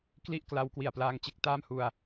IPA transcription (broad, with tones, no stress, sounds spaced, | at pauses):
k l i˥˩ ʔ k l a˧ w k w i˨˩ a̯ p l aː˧ ŋ t͡ɕ e˥˩ k̚ t aː˥˩ m h u˧ a̯